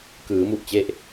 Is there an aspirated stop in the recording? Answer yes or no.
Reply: no